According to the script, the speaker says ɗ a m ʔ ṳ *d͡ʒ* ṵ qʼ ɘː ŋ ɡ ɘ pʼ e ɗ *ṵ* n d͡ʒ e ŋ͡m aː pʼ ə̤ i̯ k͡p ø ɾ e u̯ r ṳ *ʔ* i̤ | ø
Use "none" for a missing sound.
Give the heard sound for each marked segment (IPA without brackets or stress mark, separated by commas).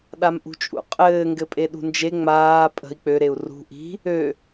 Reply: t͡ʃʼ, ṳ, ʔ